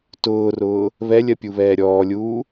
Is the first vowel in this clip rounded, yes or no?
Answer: yes